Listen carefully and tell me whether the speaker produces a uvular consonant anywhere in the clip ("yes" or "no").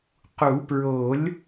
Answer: yes